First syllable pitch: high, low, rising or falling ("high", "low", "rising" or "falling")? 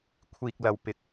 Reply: low